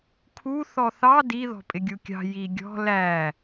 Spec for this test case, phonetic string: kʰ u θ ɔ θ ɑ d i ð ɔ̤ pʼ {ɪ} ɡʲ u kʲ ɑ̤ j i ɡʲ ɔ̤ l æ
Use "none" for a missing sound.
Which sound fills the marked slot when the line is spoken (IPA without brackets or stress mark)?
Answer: ɪ